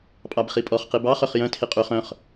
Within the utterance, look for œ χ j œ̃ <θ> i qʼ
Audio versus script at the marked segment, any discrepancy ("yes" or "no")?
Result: yes